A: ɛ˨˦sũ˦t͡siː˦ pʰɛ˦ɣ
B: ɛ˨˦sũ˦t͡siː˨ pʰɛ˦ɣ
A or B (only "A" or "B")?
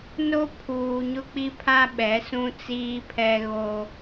A